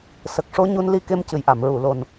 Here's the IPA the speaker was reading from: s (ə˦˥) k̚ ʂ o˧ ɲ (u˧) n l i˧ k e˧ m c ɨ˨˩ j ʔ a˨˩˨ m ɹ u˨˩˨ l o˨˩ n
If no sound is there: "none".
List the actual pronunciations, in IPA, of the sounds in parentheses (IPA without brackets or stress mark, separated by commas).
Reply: ə˨˩, u˧